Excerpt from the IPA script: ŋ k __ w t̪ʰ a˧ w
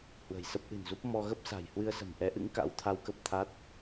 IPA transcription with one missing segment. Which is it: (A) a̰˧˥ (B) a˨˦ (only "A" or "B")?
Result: A